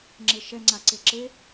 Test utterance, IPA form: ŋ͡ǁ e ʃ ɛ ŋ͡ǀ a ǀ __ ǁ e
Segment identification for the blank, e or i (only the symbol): e